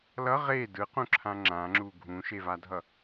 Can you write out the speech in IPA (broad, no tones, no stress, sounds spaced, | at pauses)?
l ʌ ʁ e d ɯ q ũ ǁʰ ã ŋ͡ǁ ã ŋ͡ǁ u ɡʱ ũ ʃ e v a dʱ ʌ